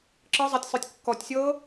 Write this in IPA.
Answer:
ǁ ɤ zˤ a tʲ sˤ œ tʲ kː ɔ tʲ sʲ ɤː

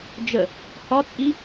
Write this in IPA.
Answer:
d͡ʒ ə | h ɒ t͡sʼ i

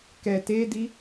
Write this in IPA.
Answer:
k ɛ t e d i

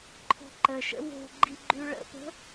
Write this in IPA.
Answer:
ǃʰ ɔ̤ ǃ ə ʃ ə̰ w o̤ ɡ͡ǃ i ɡ͡ǃ ʉ ɭ ə̰ p ə̤

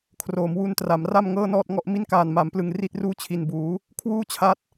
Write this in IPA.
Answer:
kʰ r oː˩˦ m w u˧ n t r a˩˦ m r a˥˩ m ŋ ɤː˥˩ n ɔː˥˩ t̚ ŋ ɔ˥˩ ʔ m i˥˩ n k aː˨˩ n m a˩˦ m p l ɯ˨˩ ŋ r i˥˩ t̚ r uː˥˩ t͡ɕʰ i˨˩ n b uː˩˦ | kʰ w uː˥˩ t͡ɕʰ a˦˥ t̚

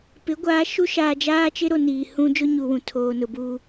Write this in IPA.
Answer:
p ɪ˨˦ ɡʷ aː˨˦ ʃ u˦ ʃ aː˨ d͡ʒ aː˦ t͡ʃ ɪ˦ ɾ o˨ n iː˨ h ũ˦ d͡ʒ ʊ˦ ɲ u˨ w ũ˨ tʰ oː˨ n ʊ˨ b u˦

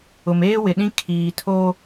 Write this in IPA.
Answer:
ʊ˨ m eː˦ w ɪ˨ ɗ ĩ˦ kʰ iː˨ tʰ oː˦

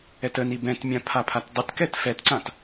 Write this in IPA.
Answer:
ɛ t ə n i b ɛ̃ t mʲ ã pʰ a pʰ a t dˤ ə t k ɛ t f ɛ t ǀ ã t

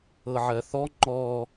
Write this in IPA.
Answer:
ɤ ʕ ɜ θ ɔ ŋ͡ǃ ɔ

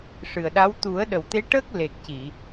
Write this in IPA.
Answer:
ʂ ɨ˨˩ ə̯ ɗ a˧˥ w t̪ u˨˩˦ ə̯ ɗ ə˨˩ w t̪ e˧˥ ʈ əː˦˥ k̚ l e˨˩ k̚ c i˨˩˨

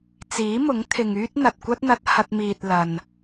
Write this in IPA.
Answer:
t͡s iː˨˥ m ʊ˨˥ ŋ t̪ʰ ɪ˨ ŋ yː˥ t̚ n̪ ɐ˨ t̚ kʷ ɐ˥ t̚ n̪ ɐ˧ t̚ h ɐ˧ t̚ m iː˨ t̚ l ɐ˨ n

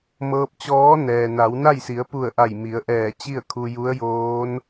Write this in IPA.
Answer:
m ɤː˧ p̚ t͡ɕ ɔː˧˥ n ɛː˩ n a˩˧ w n a˥˨ j s i˩˧ ə̯ p u˧˩ ə̯ ʔ a˧˩ j m i˩˧ ə̯ ʔ ɛː˧˩ t͡ɕ i˥˨ ə̯ kʰ u˧ j u˧˥ ə̯ j oː˧˥ n

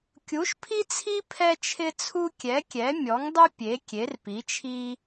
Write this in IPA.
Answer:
kʲ u˨˥ ʃ pʰ i˥ t͡sʰ i˥ pʰ ɛ˥ t͡ʃʰ ɪ˥ t͡sʰ u˥ kʲ ɛ˨˥ kʲ ɛ˨˥ mʲ ɔ˨˥ ŋ dˤ u˥ pʲ e˨˥ kʲ e˨˥ r p i˨˥ t͡ʃʰ i˥

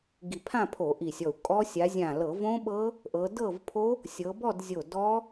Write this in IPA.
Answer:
ɡ i˧˩ pʰ ã˥˧ pʰ o˧˩˧ ʔ i˧˩ sʲ ɔ˧˩ u̯ kʼ ɔ˦˥ sʲ a˨˦ zʲ ã˧˩ l ɤ˧˩˧ v õ˦˥ ɓ ɤ˦˥ | ʔ ɤ˨˦ d ɤ˥˧ v pʰ o˦˥ | sʲ ɤ˨˦ b ɔ˥˧ d zʲ o˧˩ d ɔ˦˥

